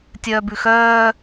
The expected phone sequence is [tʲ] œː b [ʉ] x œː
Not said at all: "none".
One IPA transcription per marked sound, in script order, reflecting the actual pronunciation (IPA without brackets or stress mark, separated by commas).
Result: tʲ, ʉ